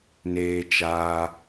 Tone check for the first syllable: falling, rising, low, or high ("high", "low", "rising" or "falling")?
high